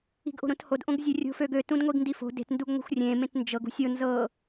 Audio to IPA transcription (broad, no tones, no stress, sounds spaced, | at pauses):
i̤ ɡ ʔ o̤ ɾ õ t h o d ʔ õ ɡ zʲ ø rʲ o̤ f ø ɡ ø t ũ d ŋʷ i ɡ n d i f o̤ d e̤ t n d u ɡ ŋʷ e̤ xʷ rʲ ẽ m ẽ t n d͡ʒ ɤ ɡ ṳ sʲ o n z ɤ